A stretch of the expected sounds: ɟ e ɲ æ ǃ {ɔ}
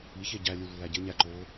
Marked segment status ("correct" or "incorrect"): incorrect